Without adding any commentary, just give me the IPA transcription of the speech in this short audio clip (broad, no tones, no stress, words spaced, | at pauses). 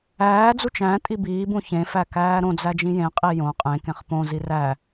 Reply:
æːd͡zu t͡ʃæ̃ tʼibiːbũ çẽfæ kæːɾõd͡zæ d͡ʒĩjẽqʼi jõ qʼẽkẽχ põzi ræ